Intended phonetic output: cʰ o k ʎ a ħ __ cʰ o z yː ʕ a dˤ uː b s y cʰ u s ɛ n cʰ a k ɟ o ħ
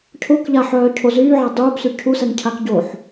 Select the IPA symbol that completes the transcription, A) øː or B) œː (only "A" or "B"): B